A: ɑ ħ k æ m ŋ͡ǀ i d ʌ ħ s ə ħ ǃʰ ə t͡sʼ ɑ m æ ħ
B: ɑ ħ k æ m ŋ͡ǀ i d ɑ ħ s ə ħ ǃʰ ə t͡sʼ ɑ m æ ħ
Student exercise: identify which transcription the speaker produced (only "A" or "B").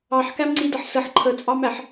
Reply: A